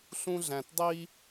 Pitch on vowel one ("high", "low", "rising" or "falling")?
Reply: high